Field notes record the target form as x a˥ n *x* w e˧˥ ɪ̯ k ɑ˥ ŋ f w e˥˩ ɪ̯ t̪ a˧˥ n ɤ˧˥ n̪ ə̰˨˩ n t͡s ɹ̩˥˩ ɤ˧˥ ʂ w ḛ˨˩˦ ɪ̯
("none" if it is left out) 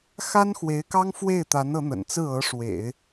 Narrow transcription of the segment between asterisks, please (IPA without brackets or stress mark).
x